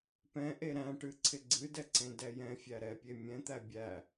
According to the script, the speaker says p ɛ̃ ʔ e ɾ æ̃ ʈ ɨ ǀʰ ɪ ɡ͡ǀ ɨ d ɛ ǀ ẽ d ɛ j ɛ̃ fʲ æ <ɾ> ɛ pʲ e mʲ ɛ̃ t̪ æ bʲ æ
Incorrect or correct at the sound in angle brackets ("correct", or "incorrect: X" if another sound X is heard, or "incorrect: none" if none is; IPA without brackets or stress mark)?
correct